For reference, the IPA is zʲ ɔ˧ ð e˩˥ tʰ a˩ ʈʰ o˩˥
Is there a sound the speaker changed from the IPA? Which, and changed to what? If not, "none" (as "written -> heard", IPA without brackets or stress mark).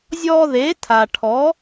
o˩˥ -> ɔ˩˥